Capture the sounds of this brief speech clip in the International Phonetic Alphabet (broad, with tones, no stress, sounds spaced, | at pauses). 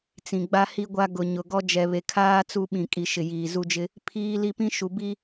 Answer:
t͡s ĩ˨ ɡ͡b a˦ h i˦ ɡʷ a˦ ɡ ʊ˨ ɲ ʊ˨ ɡ ɔ˦ d͡ʒ ɛ˨ β e˨ kʰ aː˦ t͡s u˦ ɓ ĩ˨ kʼ i˨ ʃ ɪ˨ j iː˨ z u˦ d͡ʒ ɪ˦ | pʰ iː˦ l i˦ p ĩ˦ ʃ u˨ b i˦